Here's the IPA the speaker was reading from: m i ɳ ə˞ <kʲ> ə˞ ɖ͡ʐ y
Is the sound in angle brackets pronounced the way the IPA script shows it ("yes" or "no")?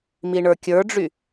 yes